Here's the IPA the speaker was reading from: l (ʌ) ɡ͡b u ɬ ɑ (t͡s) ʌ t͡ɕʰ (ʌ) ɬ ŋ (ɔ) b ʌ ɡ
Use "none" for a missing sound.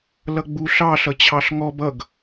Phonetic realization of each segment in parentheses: ʌ, ɬ, ɑ, ɔ

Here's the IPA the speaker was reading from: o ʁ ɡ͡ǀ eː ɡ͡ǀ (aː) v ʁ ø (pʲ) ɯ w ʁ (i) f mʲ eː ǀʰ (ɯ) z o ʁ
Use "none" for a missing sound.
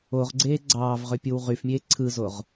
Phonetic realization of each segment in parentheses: ɑː, pʲ, y, ɯ

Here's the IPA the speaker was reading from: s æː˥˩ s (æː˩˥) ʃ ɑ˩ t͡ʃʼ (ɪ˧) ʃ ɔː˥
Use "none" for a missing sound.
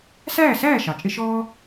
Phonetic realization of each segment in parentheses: æː˥˩, ɪ˧

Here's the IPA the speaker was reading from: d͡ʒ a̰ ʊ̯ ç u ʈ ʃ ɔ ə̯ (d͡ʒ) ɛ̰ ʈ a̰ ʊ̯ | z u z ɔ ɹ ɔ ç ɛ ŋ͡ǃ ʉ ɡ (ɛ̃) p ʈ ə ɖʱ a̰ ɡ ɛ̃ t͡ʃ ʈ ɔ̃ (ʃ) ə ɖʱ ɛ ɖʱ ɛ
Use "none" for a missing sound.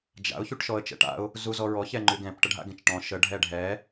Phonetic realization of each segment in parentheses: t͡ʃ, ɛ̃, ʃ

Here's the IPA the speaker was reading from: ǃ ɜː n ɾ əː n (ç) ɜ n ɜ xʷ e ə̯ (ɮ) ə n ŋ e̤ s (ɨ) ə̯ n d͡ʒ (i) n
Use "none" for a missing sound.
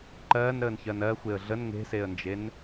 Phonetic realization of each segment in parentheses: ç, ɮ, e, e

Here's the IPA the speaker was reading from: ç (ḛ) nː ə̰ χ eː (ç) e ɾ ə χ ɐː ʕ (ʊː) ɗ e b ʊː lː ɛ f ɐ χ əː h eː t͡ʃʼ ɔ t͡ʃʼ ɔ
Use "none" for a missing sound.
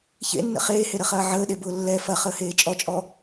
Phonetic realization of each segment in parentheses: ḛ, h, əː

